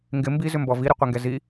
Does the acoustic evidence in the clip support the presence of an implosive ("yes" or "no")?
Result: no